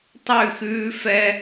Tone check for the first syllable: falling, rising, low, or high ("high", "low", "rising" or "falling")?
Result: falling